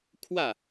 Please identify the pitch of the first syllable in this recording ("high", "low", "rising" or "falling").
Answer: falling